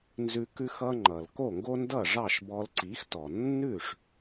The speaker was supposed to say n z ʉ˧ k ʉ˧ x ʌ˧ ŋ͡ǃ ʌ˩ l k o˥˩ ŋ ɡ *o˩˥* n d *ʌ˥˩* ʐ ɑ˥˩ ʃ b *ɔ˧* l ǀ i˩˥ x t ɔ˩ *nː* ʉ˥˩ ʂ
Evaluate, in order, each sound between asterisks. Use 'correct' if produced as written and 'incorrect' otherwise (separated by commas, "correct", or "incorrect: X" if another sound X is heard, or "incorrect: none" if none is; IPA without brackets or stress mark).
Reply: incorrect: o˥, correct, correct, correct